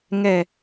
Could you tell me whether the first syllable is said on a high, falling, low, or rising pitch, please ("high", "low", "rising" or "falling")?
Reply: falling